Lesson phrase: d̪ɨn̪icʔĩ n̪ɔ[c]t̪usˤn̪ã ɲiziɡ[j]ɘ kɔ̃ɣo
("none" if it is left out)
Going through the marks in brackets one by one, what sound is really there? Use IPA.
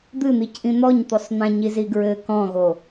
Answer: ɲ, ɹ

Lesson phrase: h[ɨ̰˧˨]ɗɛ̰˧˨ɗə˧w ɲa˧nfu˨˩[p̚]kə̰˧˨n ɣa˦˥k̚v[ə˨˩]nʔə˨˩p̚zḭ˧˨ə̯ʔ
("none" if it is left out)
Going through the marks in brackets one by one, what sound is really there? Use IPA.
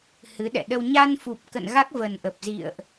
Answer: ɨ˨˦, p̚, ə˨˩

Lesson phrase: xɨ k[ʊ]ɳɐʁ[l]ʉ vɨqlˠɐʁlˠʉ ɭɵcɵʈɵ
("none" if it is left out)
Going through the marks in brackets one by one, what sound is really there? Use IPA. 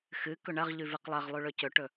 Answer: ɵ, ʎ

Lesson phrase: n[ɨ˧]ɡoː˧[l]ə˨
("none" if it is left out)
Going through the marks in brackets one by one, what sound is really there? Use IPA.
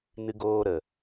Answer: ɨ˧, ɾ

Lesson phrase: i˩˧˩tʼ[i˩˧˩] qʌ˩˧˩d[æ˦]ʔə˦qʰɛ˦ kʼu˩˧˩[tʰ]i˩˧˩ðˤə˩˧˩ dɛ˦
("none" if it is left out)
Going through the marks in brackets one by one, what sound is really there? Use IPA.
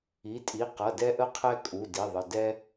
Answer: i˩˧˩, ɛ˦, d

